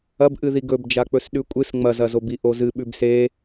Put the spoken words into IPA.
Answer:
ɐ b ʔ ɨ ð i ɡ ɵ b d͡ʒ a k͡p ɵ s ɗ ʉ kʷʼ ɨ s ŋ͡m ɐ z ɐ z o b i ʔ o z ɨ ɓ ʉ b s e

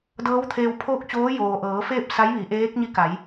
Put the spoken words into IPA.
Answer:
d ɤː˧˥ w t̪ʰ eː˧ w pʰ oː˥˨ k̚ t͡ɕ oː˧˥ j oː˩ ʔ ɤː˩˧ f eː˥˨ p̚ s a˧˥ j ʋ i˩˧ ʔ eː˧˥ k̚ ɲ i˧˥ k a˩˧ j

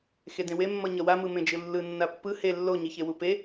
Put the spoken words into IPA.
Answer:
x e d ẽ w e mː ʌ ɲ ʌ w a m ɯ m ẽ d͡ʒ ɯ lː ɯ nː a pː ɯ h e lː o ɲ i ç e w u p e

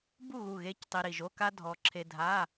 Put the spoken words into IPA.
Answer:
b u˥˩ ɣ u˧˩ ɣ e˧˥˧ c tˤ i˧ ɾ i˧˩ ʒ o˧˥˧ k a˥ dʱ ɔ˧ ǁʰ e˧ dʱ a˧˥˧

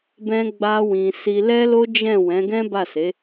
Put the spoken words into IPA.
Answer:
b ɛ̃˦ ɡ͡b a˦ w ĩ˧ s i˧ l ɛ˦ l o˦ d͡ʒ ɛ̃˦˨ w ɛ̃˨˦ ɡ ɛ̃˦ b a˦˨ s e˨˦

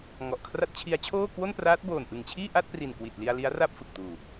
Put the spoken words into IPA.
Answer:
ŋ ɔ˨˩ ʔ kʰ r a˦˥ t̚ t͡ɕʰ i˦˥ a̯ t͡ɕʰ oː˥˩ k w o˥˩ n p r aː˦˥ t̚ b oː˨˩ n ʔ ɯ˨˩ ŋ t͡ɕʰ iː˥˩ ʔ a˥˩ t̚ p r i˨˩ n k w i˨˩ t̚ l i˧ a̯ l i˦˥ a̯ r a˥˩ p̚ f ɯ˨˩ k̚ t uː˨˩

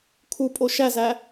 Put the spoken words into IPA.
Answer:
kʰ u pʼ o ʃ æ z æ

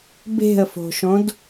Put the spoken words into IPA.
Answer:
b e̤ ə̯ f o̤ ʃ õ d

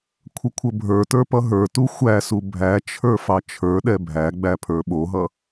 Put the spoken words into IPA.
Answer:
kʷʰ ə kʷʰ ə bʱ ə˞ t ə˞ p ʌ ɦ ə˞ t u xʷ æ s u bʱ æ t͡ʃʰ ə˞ f ɑ t͡ʃʰ ə˞ ɗ ɛ bʱ æ ɡ͡b æ pʰ ə˞ ɓ o ɦ ʌ

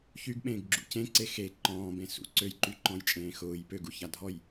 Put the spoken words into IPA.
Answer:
ç y ɡ ɓ ẽː ɡ ɡ͡ǁ ṵ c ẽ ǀ e x e ǃ ɔ̃ː b ẽ s ṵ ǀ ø j ǃ y ǃ ɔ̃ j t͡ʃʼ ẽː x ʊː j p ø ɡ u ç a dʱ ɔ j

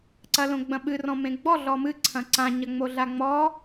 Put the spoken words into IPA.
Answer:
ǀ ɐ l õ ɡ͡b ɐ̃ ɓ ɨ r ɔ̃ m ẽ ɡ͡b ɔ ɮ ɔ m ɨ ǀʰ ɐ̃ ǀ ã ɲ ɐ ŋ͡m o ɮ a ŋ͡m ɔ

